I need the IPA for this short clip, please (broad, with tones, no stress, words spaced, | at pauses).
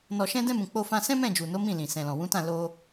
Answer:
nɔ˨ʃɛ̃˧dɛ̃˧mũ˨ k͡po˧fã˧sɛ̃˦mɛ̃˦˨ d͡ʒu˨no˨˦ mĩ˦˨lĩ˨ sɛ̃˨lɔ̃˨wũ˨˦tã˦˨ lo˧